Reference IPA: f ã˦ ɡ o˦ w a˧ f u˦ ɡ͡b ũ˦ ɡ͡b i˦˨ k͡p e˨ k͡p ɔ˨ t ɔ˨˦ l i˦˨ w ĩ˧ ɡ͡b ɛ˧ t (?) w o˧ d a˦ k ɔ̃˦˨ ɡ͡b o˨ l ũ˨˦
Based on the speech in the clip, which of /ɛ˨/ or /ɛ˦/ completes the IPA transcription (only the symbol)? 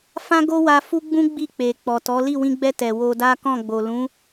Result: ɛ˨